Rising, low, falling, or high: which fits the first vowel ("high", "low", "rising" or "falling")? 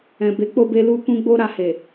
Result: low